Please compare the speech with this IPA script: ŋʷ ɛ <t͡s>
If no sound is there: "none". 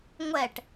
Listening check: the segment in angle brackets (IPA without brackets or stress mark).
ʈ